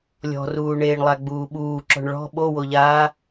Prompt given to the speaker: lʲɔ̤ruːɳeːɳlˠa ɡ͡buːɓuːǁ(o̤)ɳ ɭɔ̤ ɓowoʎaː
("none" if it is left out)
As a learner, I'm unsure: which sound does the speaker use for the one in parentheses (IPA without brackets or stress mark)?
ɔ̤